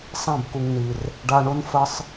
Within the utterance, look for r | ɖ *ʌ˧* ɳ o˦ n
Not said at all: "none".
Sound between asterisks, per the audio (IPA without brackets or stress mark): a˧